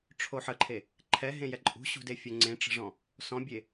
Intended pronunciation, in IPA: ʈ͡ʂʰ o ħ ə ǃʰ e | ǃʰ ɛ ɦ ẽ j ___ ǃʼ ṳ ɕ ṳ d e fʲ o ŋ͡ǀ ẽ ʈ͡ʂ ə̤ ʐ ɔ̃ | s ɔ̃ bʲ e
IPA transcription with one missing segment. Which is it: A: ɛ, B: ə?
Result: A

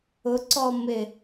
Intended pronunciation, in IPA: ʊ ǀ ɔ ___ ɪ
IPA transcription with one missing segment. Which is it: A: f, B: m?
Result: B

